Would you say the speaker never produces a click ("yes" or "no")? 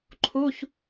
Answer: no